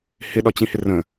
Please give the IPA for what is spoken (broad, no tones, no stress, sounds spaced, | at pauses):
h ɪ ɗ ɒ t͡ɕ ĩ h ɪ r ə̃